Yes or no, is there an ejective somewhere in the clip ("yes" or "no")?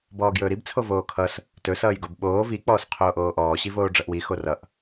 no